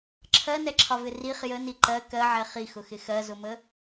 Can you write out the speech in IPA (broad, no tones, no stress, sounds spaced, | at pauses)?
ǁʰ ɜ n ɛ ǁʰ ɒ v ɪ r i χ j ə n i ǃ ɜ k ɜ ʕ ɛ χ i x ʊ x ɪ x ɜ z ʊ m ə